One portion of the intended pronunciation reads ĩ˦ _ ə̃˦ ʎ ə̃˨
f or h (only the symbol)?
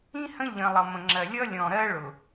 h